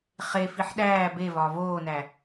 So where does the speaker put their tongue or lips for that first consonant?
uvula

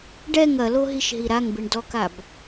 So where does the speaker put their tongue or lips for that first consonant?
retroflex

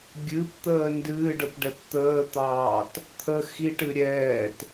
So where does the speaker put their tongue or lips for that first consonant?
velum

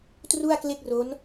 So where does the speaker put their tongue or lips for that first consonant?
tongue tip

